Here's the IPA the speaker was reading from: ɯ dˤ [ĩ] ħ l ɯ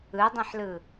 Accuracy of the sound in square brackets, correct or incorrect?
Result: correct